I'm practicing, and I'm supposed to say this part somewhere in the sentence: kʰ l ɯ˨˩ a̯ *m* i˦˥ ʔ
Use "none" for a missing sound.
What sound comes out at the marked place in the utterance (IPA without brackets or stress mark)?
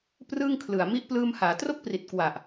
m